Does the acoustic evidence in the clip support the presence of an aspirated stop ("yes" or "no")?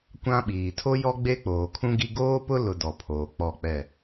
yes